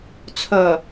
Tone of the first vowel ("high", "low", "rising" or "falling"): low